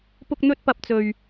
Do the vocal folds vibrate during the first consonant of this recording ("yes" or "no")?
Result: no